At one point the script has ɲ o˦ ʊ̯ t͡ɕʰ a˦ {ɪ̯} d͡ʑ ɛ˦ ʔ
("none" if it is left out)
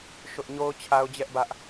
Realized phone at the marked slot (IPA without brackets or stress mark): ʊ̯